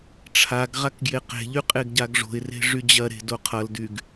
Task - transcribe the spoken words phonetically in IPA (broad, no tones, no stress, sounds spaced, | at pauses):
ʈ͡ʂʰ a ɡ ʁ a k ɡ j e q e̤ ʎ y qʼ e ɡ ɟ a ɡ ʐ o̤ ɪ̯ r e̤ ʐ y d͡ʑ ɐ ɾ e̤ d o qʰ ʌ l d y ɡ